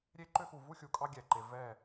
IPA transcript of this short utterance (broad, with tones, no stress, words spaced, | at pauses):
ɾʲe˦ǃø˦xu˨ vu˦xʲu˨kʼɑ˦ ɡʲɛ˨ǃe˨ vɛ˦˨